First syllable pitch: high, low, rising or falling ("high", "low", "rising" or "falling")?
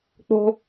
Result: high